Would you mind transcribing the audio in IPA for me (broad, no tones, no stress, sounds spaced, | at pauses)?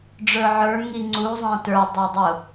ɖ͡ʐ ə˞ ʕ ə˞ ŋ i ŋ͡ǀ u zˤ æ̃ t ə˞ dˤ ɑ dˤ ʊ